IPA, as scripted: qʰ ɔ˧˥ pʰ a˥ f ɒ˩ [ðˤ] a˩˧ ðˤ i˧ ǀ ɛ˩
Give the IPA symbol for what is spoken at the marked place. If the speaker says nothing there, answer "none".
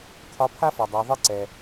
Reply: dˤ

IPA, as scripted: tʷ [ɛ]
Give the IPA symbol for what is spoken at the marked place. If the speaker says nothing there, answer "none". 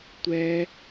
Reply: ɛ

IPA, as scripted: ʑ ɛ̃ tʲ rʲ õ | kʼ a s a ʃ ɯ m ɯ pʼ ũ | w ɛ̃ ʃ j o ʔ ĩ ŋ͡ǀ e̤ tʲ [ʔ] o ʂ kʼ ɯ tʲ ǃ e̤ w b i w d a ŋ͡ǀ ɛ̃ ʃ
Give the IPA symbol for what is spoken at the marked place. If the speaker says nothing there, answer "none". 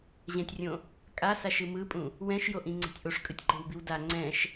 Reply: ʔ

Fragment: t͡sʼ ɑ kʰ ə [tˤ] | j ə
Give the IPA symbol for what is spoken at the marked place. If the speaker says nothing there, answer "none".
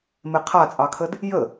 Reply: d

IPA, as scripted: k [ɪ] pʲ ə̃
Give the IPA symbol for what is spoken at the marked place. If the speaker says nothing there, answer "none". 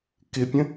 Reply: ɪ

